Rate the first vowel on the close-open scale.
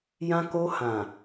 open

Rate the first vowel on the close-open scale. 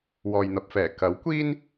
mid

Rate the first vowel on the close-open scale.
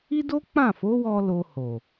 close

